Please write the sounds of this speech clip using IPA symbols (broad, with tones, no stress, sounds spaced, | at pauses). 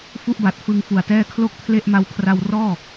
f u˥˩ ʔ b a˨˩ t̚ f ɯ˧ ŋ f u˨˩ a̯ t ɛː˥˩ kʰ l o˥˩ k̚ pʰ l e˥˩ ʔ m a˦˥ w kʰ r a˧ w r ɔː˥˩